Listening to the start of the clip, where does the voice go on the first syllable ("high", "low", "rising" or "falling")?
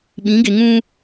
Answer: rising